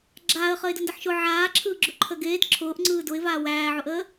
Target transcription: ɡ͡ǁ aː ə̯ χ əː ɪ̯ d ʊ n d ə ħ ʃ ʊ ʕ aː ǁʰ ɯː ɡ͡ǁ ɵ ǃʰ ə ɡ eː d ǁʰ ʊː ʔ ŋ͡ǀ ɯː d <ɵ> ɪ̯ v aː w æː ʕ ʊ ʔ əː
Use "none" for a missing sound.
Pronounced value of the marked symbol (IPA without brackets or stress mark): ʊ